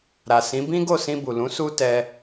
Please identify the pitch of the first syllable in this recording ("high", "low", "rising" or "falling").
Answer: low